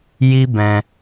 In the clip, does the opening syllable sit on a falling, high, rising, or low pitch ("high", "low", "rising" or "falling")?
high